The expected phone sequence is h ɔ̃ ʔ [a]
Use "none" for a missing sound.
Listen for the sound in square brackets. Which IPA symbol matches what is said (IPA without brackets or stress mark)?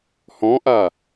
a